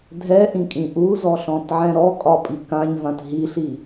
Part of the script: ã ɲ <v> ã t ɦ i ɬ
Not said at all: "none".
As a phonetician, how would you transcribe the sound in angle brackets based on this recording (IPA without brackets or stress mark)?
v